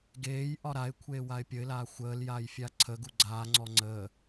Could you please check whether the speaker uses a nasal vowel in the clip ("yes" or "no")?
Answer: no